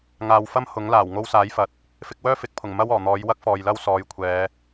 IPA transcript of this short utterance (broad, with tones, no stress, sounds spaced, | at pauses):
ŋ aː˨ w f ɐ˥ m h ʊ˨˥ ŋ l aː˨˩ w ŋ o˧ w s aː˨˥ j f ɐ˨ t̚ | f ɪ˧ k̚ w œː˥ f ɪ˨˥ k̚ pʰ ʊ˨˩ ŋ m ɐ˥ w ɔː˨˩ n̪ ɔː˨˥ j w ɐ˥ k̚ f ɔː˨ j l ɐ˥ w s ɔː˨ j kʷʰ ɛː˨˧